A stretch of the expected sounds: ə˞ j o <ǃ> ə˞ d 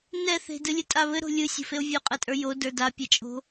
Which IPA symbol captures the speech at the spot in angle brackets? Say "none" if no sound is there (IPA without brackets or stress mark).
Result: d